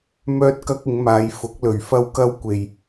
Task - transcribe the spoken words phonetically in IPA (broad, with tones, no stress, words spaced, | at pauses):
mœː˧t̚kɐ˧k̚ ɪ˨˧ŋmaː˨˧jfʊ˨˥k̚lɵ˨ɥ fɐ˧wkɐ˧w kʷe˨j